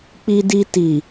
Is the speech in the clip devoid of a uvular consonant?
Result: yes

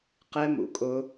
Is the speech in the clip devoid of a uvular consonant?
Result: no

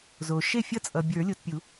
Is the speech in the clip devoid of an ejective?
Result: no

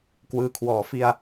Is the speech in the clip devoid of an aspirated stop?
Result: no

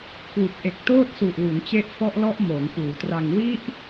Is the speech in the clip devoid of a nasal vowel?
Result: yes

